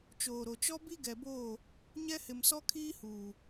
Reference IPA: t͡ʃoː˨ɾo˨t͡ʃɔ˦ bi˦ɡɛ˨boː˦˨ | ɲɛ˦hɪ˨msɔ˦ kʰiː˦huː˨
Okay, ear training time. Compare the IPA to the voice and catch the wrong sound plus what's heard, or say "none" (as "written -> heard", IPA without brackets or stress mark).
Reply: none